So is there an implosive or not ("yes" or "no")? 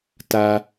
no